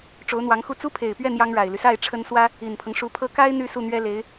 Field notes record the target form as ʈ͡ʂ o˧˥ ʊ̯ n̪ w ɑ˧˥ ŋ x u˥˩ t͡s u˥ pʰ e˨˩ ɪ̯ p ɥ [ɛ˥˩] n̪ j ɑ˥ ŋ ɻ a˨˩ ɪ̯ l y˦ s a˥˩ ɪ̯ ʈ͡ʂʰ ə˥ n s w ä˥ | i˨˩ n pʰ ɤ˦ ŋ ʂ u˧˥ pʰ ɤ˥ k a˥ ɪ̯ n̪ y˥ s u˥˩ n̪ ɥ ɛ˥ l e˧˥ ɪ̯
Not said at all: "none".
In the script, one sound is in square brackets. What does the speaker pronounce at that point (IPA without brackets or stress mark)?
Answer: ɛ˥˩